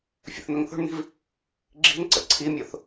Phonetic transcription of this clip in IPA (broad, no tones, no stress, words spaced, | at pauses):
fʲə̰θn̪ɵŋθo̤ɳn̪i̤v | ɡ͡ǁi̤nǀə̰ ǀʰimʲoθ